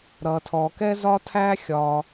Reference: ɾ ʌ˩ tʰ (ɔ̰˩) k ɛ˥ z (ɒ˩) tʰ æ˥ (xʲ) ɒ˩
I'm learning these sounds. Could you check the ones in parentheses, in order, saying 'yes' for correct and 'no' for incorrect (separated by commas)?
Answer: no, no, yes